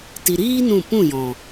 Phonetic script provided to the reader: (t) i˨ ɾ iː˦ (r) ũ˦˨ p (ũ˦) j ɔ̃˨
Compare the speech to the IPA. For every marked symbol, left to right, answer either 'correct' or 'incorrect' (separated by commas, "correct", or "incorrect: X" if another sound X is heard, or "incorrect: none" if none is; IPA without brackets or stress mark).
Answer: correct, incorrect: n, incorrect: ũ˦˨